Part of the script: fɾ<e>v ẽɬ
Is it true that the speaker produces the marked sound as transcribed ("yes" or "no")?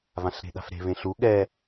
no